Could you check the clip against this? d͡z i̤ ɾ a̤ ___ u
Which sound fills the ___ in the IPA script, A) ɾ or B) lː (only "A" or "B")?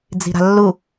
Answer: B